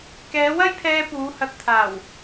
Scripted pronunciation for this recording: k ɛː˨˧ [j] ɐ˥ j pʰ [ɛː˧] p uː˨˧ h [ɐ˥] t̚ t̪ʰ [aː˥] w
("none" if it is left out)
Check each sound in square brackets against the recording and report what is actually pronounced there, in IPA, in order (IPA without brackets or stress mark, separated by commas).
w, ɛː˧, ɐ˧, aː˨˩